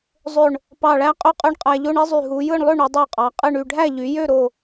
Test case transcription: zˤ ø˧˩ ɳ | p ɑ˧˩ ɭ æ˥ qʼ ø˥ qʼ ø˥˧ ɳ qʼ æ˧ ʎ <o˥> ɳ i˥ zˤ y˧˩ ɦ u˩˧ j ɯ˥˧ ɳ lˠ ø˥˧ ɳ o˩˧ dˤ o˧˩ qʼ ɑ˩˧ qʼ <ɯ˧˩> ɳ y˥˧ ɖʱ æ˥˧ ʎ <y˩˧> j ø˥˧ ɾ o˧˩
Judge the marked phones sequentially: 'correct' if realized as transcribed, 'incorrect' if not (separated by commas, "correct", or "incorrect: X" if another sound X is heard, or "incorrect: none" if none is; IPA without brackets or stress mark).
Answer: correct, incorrect: ɯ˥˧, correct